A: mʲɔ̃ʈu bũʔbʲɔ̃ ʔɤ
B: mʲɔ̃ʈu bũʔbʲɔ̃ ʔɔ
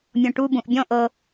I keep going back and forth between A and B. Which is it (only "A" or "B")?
A